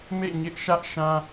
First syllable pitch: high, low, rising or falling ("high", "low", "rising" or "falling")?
falling